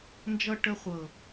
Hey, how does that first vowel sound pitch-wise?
high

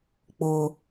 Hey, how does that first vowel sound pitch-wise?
low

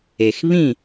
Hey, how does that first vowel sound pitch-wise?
low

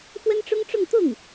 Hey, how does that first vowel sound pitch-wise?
high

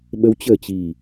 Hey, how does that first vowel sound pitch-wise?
rising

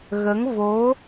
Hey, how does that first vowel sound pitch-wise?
rising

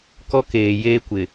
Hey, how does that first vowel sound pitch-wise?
high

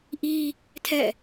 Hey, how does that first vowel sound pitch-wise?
high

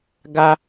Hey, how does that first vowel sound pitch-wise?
high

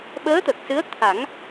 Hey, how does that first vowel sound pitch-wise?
rising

